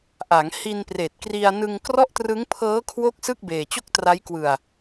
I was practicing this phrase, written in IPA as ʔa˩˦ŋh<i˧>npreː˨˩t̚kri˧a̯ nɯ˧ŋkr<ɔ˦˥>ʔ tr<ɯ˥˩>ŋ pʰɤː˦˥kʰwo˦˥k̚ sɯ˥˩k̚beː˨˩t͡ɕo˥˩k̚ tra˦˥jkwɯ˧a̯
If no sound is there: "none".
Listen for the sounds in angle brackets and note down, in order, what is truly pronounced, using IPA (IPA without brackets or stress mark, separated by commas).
i˧, ɔ˥˩, ɯ˦˥